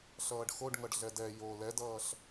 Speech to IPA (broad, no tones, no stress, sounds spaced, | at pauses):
ɬ ʌː ɖ x o ɖ ŋ ʌ ɖ ɮ ɛ d ɛ j o l ɛ d ʌː ɬ